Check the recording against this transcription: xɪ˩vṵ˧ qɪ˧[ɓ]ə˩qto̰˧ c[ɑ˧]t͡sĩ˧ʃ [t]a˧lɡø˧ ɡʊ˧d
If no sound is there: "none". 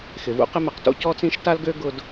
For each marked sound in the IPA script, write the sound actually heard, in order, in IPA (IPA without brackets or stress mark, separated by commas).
m, ɔ˧, t